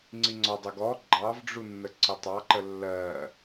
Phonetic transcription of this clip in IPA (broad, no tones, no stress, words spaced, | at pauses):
ŋ͡ǀiŋ͡ǀɒdˤɛɡ ɔ ɡ͡ǃɑvɖ͡ʐu nːəǀətˤɑǃə lːɜ